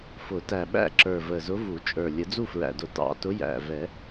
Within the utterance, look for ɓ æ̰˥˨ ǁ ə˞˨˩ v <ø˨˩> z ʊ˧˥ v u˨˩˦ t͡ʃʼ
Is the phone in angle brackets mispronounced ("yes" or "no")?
yes